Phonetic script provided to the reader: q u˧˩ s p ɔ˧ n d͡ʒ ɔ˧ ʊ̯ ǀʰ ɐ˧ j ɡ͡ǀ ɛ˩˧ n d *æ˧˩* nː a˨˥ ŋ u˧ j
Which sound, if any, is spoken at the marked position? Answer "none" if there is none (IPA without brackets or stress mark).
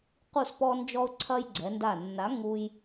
a˧˩